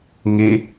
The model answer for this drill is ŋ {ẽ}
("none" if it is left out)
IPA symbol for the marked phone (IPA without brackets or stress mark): e